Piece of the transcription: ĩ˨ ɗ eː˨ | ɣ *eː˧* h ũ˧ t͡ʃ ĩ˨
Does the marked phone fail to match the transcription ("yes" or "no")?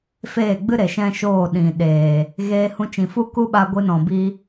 no